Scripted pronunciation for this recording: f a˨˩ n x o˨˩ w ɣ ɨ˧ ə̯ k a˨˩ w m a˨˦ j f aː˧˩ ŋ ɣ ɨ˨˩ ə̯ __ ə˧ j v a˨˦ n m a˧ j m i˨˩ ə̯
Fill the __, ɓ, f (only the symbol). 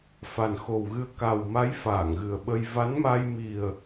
ɓ